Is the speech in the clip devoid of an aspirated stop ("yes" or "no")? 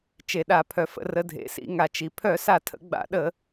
no